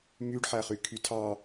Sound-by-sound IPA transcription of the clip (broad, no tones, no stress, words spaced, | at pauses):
myɖħæχykʰy tʰɑ